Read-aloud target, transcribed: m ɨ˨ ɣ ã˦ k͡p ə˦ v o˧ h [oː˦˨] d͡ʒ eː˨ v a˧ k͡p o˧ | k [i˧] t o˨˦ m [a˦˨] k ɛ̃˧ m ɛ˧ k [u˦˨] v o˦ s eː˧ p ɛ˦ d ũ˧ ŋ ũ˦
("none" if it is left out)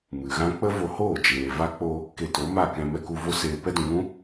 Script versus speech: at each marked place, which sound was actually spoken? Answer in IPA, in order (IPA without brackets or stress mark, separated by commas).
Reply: oː˦˨, e˧, a˦˨, u˧